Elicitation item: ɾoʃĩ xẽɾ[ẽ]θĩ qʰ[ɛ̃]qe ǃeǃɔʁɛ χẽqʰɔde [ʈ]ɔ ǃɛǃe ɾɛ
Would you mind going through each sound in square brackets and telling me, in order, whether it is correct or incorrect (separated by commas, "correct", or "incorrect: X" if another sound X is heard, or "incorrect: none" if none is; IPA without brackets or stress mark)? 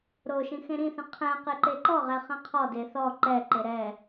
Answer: incorrect: ĩ, correct, incorrect: θ